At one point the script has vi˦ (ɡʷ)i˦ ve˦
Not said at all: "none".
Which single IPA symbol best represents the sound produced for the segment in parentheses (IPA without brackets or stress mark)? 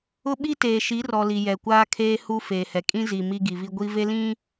ɡʷ